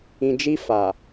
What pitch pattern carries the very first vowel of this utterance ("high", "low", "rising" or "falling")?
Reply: low